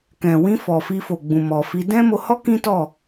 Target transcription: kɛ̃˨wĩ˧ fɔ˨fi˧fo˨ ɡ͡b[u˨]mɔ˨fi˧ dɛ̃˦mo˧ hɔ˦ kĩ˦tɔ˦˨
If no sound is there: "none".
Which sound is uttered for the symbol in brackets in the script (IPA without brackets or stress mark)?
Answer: ũ˨